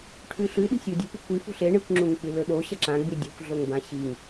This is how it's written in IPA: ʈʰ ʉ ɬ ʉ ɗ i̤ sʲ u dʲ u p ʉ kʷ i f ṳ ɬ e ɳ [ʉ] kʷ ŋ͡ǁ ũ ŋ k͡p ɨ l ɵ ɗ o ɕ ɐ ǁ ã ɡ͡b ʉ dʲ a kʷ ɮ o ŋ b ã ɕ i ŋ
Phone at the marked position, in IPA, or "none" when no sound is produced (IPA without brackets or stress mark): ɨ